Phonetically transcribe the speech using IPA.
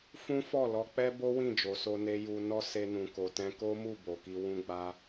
fũ˦fɔ˦˨lɔ˧ k͡pɛ˦ bo˦wĩ˦˨ d͡ʒo˨so˧ne˧ ju˧ nɔ˦ se˧nũ˨ko˨tɛ̃˧ ko˦mu˦˨ bo˨ki˧ wũ˦ɡ͡ba˦

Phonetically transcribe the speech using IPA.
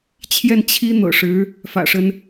t͡ɕʰjɛ˥˩nt͡ɕʰi˥n̪ɤ̰˨˩ʂɻ̩˧˥ | fä̰˨˩ʂə˦n

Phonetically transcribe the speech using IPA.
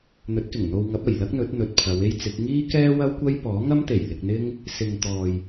n̪ɵ˨˥t̚kɪ˨˩ŋ n̪o˧wŋɐ˨˥p̚ɐ˨˩j lɐ˥k̚n̪ɵ˨˥t̚n̪ɵ˨t̚ pʰɐ˨˧we˥jt͡sɪ˨˥k̚ ŋiː˥kɛː˥ wɐ˥wkʷɐ˥j pɔː˨˥ŋɐ˥mt̪e˨˩j lɪ˧k̚n̪ɪ˥ŋ | sɪ˨ŋ t̪ɔː˨j

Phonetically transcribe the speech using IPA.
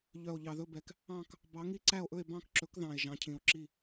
ʎœ˨˩o̯ʎɑ˨˩ðɵ˦˨bɛ˨˩k | ɑ̃˦˨k | bɑ˨˦ ŋi˦˨ǀæ˦˨o̯ʔɵ˦˨e̯ bɑ̃˦˨kǁɵ˨˦kðɑ̃˨˩e̯ ʒɑ̃˨˦cʰĩ˨˩o̯ǁi˦˨

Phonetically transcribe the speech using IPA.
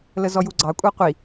ləzɔjuɡ͡ǀɑ kʷʼɑqʷi

